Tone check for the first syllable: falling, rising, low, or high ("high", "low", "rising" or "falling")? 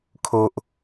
low